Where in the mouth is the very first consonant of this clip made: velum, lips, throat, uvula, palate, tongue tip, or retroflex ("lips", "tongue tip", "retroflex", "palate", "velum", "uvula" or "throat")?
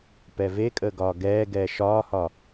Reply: lips